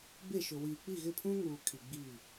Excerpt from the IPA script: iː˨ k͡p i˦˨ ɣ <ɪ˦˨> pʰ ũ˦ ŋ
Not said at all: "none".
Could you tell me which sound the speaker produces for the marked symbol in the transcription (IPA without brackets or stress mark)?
ɪ˦˨